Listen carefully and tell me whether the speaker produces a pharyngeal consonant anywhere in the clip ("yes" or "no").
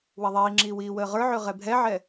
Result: yes